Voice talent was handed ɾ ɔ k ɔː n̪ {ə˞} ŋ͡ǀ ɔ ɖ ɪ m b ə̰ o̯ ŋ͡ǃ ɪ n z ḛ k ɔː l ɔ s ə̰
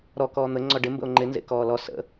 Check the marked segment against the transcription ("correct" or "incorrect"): incorrect